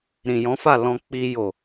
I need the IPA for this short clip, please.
ɾ ĩ˨ j ɔ̃˨˦ f a˦˨ l ɔ̃˧ k͡p i˧ j o˨

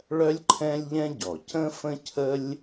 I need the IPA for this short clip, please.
ɭ œ˥ lʲ ǃʰ ɛ̃˥ lʲ ʎ ɛ̃˥ ɟ ɔ˩ c ə̃˥ f ə̃˥ cʰ ə˥ lʲ

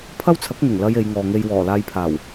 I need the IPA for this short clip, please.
pʰ ɐ˥ w t͡sʰ ɐ˨˥ k̚ ŋ ɪ˨˩ ŋ l ɐ˧ j e˨˧ j ŋ ɔː˨ ŋ e˧ j w ɔː˨˩ l aː˧ j pʰ aː˨˩ w

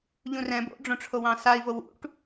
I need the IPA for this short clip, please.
ʎ ũ r ɛ̃ b o̰ ɖ͡ʐ õ ʈ͡ʂʰ o w ɑ̃ s a i̯ v o w ṵ ʈ

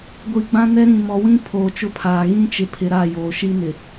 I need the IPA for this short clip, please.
ɡʷ i˨ ɡ͡b ã˦ n ɛ˦ ɾ ĩ˨ m ɔ˨ w ĩ˦ pʰ oː˨ t͡ʃ ʊ˦ pʰ aː˨ ɣ ĩ˦ t͡ʃ ɪ˨ pʰ ɪ˨ ɾ a˦˨ j oː˨ ʃ i˦ n ɪ˨

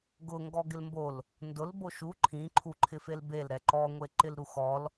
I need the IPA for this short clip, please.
ɡ ʊ ŋ ɡ ɔ ɡ ɪ l m b o l | n d ʊ l b o ʃ u ǃʰ ĩ ǃʰ u ǃʰ ɪ f e l b e l ɾ ɛ ǃ ɔ ŋʷ e ǃ ɪ l ɾ u x ɔ l

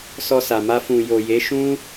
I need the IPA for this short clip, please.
s ɔ˧ s a˨ m a˧ f ũ˨ j o˨ j e˨˦ ʃ ũ˦

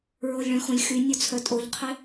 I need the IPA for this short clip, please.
ɹ o lʲ ɭ œ̃ x õ lʲ x y nʲ o t͡sʰ œ tʼ o ʎ qʰ ɪ

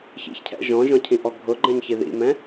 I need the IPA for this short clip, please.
ç ḭ ç cʰ ɛ̰ ʒ ɔ̃ ʒ ɔ̃ cʰ ĩ ʔ ɔ ɡʱ ʊ ɡ͡ǃ ɛ̃ ɲ ç i ð ḭ m ɛ̃

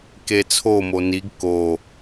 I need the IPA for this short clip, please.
k e t͡sʰ o m o n i ɡ k o

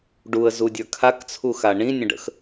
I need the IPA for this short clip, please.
ɖ u ə̯ z u dʲ ə˞ kʰ a k t͡sʰ u x a ɳ ĩ nʲ ə̃ ɖ ə̰ x

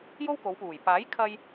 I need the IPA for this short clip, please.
j o˥ w k o˨˧ w p uː˨˩ j p aː˨˥ j kʰ ɐ˧ j

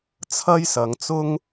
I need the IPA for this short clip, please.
t͡sʰ ɐ˥ j s ɐ˨˧ ŋ t͡s ʊ˥ ŋ

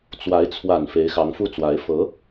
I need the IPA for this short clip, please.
t͡s w a˧˥ ɪ̯ t͡sʰ w a˨˩ n f e˧˥ ɪ̯ x ɑ˧˥ ŋ f u˥˩ t͡s w a˧˥ ɪ̯ f ɤ˧˥

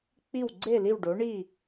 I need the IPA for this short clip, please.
k͡p i˦˨ w ɡ͡ǀ e˦˨ l i˦˨ w ɖ o˨˦ ɳ i˦˨

